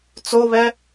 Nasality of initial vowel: oral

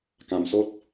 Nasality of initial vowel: nasal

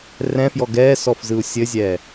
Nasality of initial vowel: nasal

